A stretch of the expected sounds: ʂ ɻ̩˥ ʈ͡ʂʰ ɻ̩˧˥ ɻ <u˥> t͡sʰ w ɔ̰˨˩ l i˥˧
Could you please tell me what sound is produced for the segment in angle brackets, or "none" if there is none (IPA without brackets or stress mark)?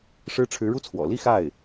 u˥